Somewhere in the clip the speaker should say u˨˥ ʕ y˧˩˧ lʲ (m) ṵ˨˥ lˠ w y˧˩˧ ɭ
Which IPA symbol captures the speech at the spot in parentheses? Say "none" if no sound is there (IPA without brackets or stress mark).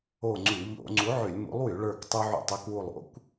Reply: m